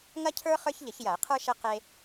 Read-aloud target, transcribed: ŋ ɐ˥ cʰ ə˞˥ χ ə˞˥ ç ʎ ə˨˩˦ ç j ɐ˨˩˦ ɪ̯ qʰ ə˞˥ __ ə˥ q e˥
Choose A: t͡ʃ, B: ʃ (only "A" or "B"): B